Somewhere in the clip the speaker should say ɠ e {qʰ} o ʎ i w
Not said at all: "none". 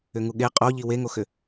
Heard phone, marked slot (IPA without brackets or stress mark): qʼ